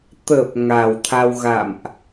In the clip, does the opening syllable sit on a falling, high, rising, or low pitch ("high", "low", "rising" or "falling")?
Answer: low